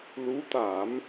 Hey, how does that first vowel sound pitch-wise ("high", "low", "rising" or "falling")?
rising